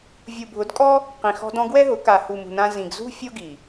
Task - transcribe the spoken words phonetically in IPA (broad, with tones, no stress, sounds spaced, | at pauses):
vʲ u˨ bʱ ʊ˨˦ d kʼ ɔ˦ | q ĩ˨ x ɔ̤˧ d ɔ̃˧ ɡ w ɛ˦ ɦ ʊ˨˦ k a˨ h u˨ m ṳ˨ n ã˧ z ĩ˨ ɡ z ṳ˦ fʲ o˦ ɡ i˨